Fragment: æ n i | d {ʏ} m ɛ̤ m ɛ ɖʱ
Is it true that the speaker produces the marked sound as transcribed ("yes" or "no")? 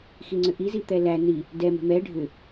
no